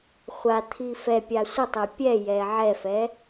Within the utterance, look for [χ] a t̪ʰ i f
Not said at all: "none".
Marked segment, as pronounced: χʷ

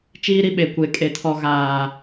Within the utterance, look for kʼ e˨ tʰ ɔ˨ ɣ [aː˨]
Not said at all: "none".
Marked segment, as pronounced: aː˨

